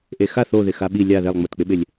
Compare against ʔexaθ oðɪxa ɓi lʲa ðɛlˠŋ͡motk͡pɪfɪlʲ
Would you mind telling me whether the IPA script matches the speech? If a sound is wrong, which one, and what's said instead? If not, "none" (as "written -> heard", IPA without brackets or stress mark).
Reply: f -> ɓ